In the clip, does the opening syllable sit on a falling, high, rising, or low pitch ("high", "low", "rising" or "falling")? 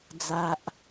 low